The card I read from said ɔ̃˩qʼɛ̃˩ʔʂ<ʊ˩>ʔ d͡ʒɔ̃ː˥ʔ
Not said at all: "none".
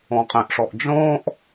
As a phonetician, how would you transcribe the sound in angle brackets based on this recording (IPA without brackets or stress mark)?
ɔ˩